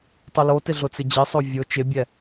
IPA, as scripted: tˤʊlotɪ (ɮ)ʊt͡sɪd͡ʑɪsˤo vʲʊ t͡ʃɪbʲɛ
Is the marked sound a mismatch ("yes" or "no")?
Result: no